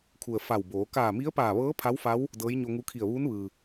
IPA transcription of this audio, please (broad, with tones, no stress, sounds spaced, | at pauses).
kʰ u˩ ə̯ f a˧˩ w b oː˩˧ k aː˧˩ m i˧˥ ə̯ p aː˧˩ ʋ ɤː˧˥ pʰ a˧˥ w f a˧˥ w | d ɤː˧˥ j ɲ o˧ ŋ u˧˥ kʰ i˧˩ ə̯ ʋ uː˧˥ n ʋ ɯː˩